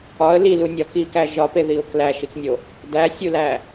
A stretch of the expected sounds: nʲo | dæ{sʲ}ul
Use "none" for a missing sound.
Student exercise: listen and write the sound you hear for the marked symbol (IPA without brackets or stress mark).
sʲ